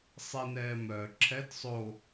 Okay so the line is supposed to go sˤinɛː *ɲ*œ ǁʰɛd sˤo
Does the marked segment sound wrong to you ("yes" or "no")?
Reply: yes